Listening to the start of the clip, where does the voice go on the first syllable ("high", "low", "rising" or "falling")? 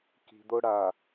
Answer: low